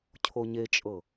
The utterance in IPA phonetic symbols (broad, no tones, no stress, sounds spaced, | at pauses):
cʰ o ɲ e t͡ʃʼ ɤ